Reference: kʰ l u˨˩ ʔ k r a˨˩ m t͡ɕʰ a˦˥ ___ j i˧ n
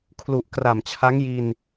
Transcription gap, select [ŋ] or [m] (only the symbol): ŋ